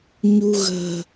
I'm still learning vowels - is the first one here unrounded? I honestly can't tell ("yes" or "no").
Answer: no